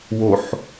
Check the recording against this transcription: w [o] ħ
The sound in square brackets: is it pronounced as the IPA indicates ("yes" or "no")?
yes